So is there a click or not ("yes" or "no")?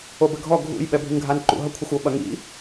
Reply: yes